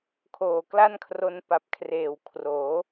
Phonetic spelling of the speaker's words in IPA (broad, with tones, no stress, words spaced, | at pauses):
kʰoː˨˩kla˥˩nkʰro˧n pa˨˩p̚kʰreː˨˩w kʰroː˩˦